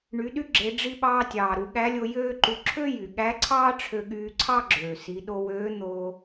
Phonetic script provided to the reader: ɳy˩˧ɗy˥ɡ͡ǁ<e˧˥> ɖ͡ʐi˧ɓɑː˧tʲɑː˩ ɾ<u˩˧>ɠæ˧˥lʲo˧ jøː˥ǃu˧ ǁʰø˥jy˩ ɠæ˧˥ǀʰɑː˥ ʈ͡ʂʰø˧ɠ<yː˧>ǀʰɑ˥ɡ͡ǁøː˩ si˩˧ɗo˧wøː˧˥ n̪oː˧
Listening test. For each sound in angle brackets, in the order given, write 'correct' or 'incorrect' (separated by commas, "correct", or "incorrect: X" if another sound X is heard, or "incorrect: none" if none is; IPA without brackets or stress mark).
incorrect: e˩˧, correct, correct